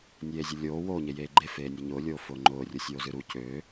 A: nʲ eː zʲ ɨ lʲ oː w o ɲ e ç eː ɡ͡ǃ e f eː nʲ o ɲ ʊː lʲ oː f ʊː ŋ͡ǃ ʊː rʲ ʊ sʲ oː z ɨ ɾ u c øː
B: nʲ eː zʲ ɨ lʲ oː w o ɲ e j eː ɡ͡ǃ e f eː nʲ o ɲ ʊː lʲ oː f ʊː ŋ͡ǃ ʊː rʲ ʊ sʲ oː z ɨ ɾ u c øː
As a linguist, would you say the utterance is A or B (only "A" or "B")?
B